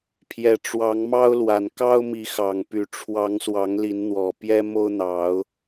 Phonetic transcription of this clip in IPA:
pʰjɛ˨˩ʈ͡ʂwɑ˨˦ŋmɑ˦ʊ̯lwa˨˩n kɑ˦ʊ̯mi˨˦ xɑ˨˩ŋpy˨˦ ʈ͡ʂʰwɑ˨˦ŋswɑ˨˦ŋ li˨˦nn̪wɔ˨˩ pjɛ˦mo˦ʊ̯n̪ɑ˨˦ʊ̯

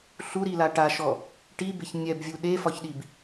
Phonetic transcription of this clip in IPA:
ɬuɾila ʈaʃɔ | ʈibeç nʲɛbvʲu ɗefɒçɗib

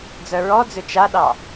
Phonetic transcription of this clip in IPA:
d͡zœɹɔd͡zʏ t͡ʃaɗɑ

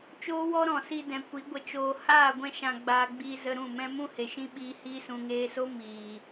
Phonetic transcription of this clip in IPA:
t͡ʃoː˦wɔ˦ɾɔ̃˨ si˧dɛ̃˨ kʷi˨˦ɡʷə˧t͡ʃoː˧ haː˦˨ɡʷɛ̃˧ʃã˨ ɡ͡baː˧ɡ͡biː˧ zə˧ɾũ˦˨mɛ̃˦ mũ˦he˨ʃĩ˦ɓiː˧ hiː˧sũ˨ŋeː˧so˦ miː˨

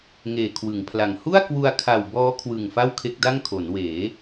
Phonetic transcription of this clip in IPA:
ŋeː˨˩kʰwɯ˩˦ŋpʰla˨˩ŋ hu˥˩a̯kwu˧a̯ kʰa˨˩w bɔː˦˥ kʰwɯ˨˩ŋ fa˥˩wkʰe˦˥k̚da˥˩ŋ kʰo˩˦nweː˩˦

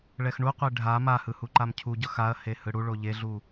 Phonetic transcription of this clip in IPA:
ɭɛxɳuqʷe ɖʱa mahɯ huǃamcʰuɟʌ xaɐ̯he hɯɽuɭo ʎeɮu

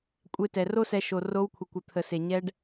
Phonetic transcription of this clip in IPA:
kʷʼe˧tɛ˨ro˦sɛ˧ ʃo˨ro˧wkʷʰə˨kʷə˨ t̪ʰə˨se˨ ɲɛ˧ɖ

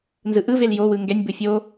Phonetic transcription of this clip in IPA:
nzɯʔɯvel jowɯ ŋɡɛnʲbɯ fʲo

